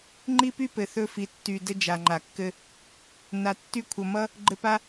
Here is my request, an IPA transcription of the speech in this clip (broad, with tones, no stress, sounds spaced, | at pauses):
ŋ͡ǃ i˦ p y˦ p ɘ˨ θ ɵ˧ f i˨ tː y˨ d ɘ˧ d͡ʒ a˨ ŋ͡ǃ a˨ kː ɘ˧ | n a˨ tː y˧ kʷʰ ʌ˨ m ʌ˦ | ɡ͡ǃ ɘ˧ p a˦